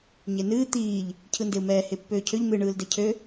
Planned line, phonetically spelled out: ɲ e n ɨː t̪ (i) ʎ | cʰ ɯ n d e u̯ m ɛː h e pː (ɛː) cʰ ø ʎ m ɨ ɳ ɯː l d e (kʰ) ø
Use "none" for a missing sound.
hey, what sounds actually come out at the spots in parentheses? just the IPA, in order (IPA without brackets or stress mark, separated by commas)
iː, øː, cʰ